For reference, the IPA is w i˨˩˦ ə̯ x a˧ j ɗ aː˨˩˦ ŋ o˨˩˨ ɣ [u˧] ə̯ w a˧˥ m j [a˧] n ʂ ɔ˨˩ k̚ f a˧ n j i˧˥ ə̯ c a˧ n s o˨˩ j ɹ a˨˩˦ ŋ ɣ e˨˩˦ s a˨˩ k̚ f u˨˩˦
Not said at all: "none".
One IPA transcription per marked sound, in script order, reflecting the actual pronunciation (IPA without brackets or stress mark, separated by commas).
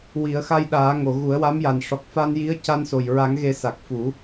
u˨˩˦, a˨˩